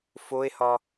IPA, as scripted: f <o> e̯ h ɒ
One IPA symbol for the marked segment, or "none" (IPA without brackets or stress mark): o